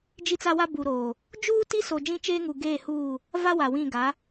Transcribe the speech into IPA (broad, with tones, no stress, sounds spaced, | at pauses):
d͡ʒ i˦ t͡s a˦ w a˦ b u˨ ɾ oː˨ | d͡ʒ uː˦ t i˦ s o˨ d͡ʒ ĩ˦ t͡ʃ eː˦ ŋ u˨ ɡ eː˦˨ h uː˦˨ | v a˦ w a˨ w ĩ˦˨ ɡ a˨˦